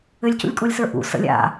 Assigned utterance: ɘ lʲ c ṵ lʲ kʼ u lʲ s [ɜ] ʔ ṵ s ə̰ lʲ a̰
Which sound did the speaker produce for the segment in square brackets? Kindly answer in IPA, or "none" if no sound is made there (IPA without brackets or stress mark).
ə˞